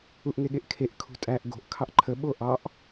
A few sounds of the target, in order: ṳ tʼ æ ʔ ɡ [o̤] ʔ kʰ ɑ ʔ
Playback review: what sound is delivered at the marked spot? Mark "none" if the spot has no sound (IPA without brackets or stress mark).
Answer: o̤